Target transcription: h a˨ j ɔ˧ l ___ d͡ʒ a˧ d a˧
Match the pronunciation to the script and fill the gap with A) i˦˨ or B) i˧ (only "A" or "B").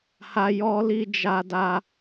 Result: B